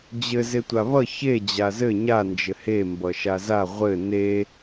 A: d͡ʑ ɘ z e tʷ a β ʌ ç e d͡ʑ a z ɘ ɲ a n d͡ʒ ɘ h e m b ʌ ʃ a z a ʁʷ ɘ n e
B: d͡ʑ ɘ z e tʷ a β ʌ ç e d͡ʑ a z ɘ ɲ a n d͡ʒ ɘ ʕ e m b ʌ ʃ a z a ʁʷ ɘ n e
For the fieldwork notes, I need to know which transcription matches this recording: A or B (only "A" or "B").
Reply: A